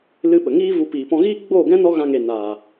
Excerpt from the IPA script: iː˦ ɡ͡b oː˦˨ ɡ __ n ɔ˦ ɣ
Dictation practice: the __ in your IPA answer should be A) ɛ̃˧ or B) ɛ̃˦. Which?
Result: B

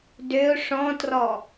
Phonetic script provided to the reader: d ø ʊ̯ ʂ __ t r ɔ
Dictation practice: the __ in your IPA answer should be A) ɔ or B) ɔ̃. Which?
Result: B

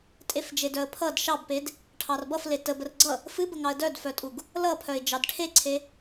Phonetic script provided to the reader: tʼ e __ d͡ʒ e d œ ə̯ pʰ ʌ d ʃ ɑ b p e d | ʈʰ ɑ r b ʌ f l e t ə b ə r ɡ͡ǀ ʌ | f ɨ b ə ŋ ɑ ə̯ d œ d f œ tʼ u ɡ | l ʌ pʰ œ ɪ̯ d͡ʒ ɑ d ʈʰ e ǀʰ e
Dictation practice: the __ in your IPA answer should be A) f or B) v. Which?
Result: A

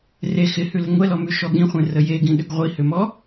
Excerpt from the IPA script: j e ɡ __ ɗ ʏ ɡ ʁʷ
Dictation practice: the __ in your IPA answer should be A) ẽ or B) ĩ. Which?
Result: B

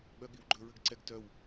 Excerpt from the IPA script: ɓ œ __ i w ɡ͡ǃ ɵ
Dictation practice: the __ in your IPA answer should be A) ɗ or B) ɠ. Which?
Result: B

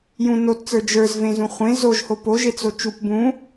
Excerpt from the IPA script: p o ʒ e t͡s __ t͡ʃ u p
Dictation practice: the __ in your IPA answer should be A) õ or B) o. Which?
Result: B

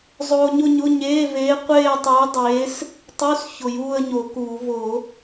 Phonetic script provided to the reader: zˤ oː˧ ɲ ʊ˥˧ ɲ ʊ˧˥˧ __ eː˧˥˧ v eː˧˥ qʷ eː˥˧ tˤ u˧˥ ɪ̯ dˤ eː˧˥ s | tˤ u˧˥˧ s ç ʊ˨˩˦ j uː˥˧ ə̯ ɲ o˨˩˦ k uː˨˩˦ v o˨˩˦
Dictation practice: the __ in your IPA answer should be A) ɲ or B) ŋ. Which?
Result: A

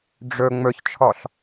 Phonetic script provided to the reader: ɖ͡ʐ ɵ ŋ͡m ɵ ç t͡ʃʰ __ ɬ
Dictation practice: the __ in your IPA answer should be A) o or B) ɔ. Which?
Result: B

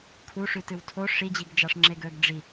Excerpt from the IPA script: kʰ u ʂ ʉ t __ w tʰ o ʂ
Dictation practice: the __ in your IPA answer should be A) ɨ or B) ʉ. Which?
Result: A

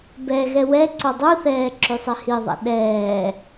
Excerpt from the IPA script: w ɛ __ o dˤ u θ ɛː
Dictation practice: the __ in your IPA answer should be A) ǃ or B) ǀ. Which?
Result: B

